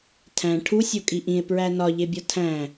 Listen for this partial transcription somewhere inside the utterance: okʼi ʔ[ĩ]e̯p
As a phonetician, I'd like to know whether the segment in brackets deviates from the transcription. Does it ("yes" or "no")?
no